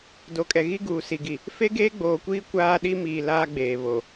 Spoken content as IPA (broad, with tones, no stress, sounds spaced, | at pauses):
d o˨ kʼ ɛ˨ ɣ i˦ ɡ uː˨ s i˨ ɡ i˨ | f e˦ ɡ eː˦ ɡ͡b oː˨ kʷ iː˦ kʷ aː˦ ɗ i˦ m iː˨ l aː˦ ɡ͡b eː˨ β o˨